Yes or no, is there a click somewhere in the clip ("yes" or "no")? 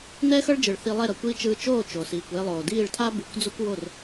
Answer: no